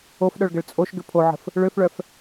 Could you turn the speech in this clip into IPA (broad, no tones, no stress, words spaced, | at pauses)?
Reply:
ofɗœɭɡəɭ t͡sʼoʃɡʏ pʰoʕə̤f | ɭøfɭœf